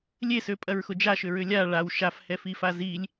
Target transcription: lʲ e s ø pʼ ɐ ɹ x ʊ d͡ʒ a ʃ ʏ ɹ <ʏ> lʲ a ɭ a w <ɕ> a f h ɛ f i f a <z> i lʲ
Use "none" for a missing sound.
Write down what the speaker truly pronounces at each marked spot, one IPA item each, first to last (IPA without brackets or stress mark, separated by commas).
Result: ʏ, ʃ, z